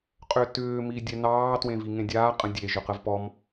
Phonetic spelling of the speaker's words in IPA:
qʼʏtʏː midʲɛnɑː twẽviŋẽdʲaː qʼə̃dʲe ʒʏqəvpɔm

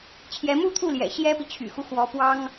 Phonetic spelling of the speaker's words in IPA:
t͡ɕʰjɛ˧˥mu˥t̪ʰu˥˩ljɛ̰˨˩ ɕjɛ˥pi˨ t͡ɕʰy̰˨˩xu˦ xwɔ˧˥pwɑ˥ŋ

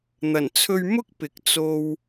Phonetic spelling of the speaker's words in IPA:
n̪ɐ˨˩nt͡sʰɵ˧ɥmʊ˥k̚ pɪ˨˥k̚ t͡so˧w

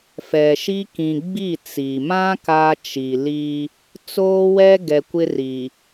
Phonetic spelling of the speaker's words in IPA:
fɛ˨ʃi˦ kĩ˨ɡ͡bi˦˨ t͡si˨mã˦ ka˦t͡ʃi˨li˦ | t͡soː˦wɛ˦ ɡɛ˨kʷɪ˦ ri˨

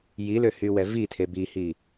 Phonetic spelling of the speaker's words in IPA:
jilø hywɛvitʰe bihi

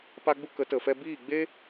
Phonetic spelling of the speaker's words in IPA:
pa˦ɡ͡bu˦ kə˨˦tə˨ fɛ˧biː˦˨ɡ͡be˦

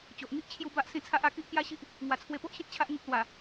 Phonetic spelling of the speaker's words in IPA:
t͡ɕo˨ʔŋi˦ʔ t͡ɕʰju˦ ba˦ʔsĩ˥˧ t͡sʰa˦ʔa˥˧ ki˦ʔkja˦ ɕi˦ʔ | ŋwa˨˩t͡sʰwe˧po˦ʔɕĩ˦t̚ t͡ɕʰa˦ʔŋĩ˦k̚ lwa˨˩

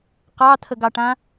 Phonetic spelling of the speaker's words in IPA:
qɑt̪ʰəɡɑʈã

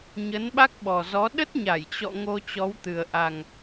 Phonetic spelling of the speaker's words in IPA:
ɲə˨˦nɓa˦˥k̚ɓɔ˨˩zɔ˨˦ ɗə˦˥t̚ɲa˧˩jt͡ɕɔ̰˧˨ ŋo˧t͡ɕɔ˨˦wt̪ɨ˨˩ə̯ ʔa˨˩ŋ

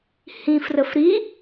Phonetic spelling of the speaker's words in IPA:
hĩfrəf ɾi

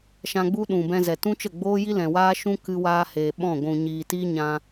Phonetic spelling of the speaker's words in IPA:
ʃã˧ɡ͡bu˦ɗũ˨bɛ̃˧ zɛ˨tũ˦t͡ʃə˦˨ ɡ͡boː˦ji˦lɛ̃˨waː˦ ʃũ˦ kɨ˧waː˧heː˨ ɓɔ̃˦˨ ɡʷũ˨ɲiː˨ti˦ ɲã˧

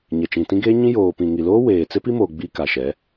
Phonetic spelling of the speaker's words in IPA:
ɲɛ˨t͡ʃĩ˨tĩ˦ɡeː˦ ɲĩ˦joː˨ pĩ˨ŋi˨loː˦ weː˨ t͡sɪ˦pi˦moː˨ ɡ͡bi˦ ka˨ʃɛ˨˦

